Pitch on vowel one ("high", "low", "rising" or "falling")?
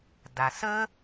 low